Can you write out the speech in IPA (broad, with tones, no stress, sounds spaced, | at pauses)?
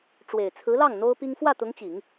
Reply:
ʈ͡ʂ w e˨˩ ɪ̯ t͡sʰ ɹ̩˧˥ l ɑ˥˩ ŋ n̪ o˥ ʊ̯ p i˥ ŋ f w ä˥˩ t̪ ʊ˧˥ ŋ t͡ɕ i˨˩˦ ŋ